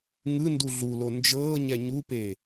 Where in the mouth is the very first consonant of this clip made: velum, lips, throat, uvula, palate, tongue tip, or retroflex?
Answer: velum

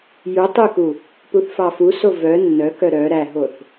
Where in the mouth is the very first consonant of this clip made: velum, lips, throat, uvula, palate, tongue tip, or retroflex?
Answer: palate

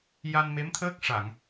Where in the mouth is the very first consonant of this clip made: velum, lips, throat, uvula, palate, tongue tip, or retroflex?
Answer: palate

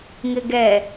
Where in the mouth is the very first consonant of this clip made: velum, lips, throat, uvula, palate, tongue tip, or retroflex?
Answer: velum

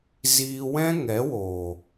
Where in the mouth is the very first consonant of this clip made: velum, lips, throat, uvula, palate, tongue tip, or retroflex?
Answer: tongue tip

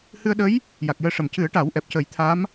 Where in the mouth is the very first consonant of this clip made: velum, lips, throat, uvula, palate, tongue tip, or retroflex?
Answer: throat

